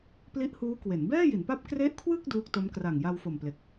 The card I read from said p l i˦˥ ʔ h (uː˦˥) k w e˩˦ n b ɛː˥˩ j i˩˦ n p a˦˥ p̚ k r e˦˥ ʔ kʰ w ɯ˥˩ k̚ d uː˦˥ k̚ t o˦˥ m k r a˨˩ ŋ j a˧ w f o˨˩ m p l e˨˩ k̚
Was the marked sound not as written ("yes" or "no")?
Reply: no